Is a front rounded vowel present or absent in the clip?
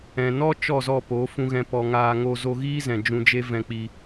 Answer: absent